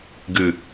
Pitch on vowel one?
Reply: low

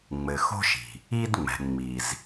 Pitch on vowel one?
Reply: low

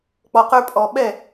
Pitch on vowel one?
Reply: low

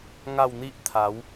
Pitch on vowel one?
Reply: falling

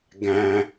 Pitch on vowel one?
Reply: low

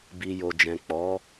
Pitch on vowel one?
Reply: low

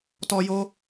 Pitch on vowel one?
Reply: high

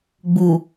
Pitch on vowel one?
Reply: low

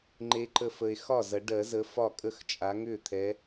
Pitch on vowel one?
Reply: rising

